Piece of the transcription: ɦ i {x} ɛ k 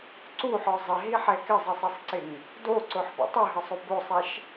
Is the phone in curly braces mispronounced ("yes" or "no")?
yes